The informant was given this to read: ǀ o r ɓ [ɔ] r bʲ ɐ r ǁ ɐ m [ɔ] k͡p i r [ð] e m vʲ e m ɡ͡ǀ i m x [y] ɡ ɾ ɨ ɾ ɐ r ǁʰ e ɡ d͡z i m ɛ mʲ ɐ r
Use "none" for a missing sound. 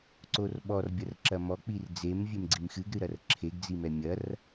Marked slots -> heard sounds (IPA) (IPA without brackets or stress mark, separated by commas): ɔ, ɔ, d͡z, ɨ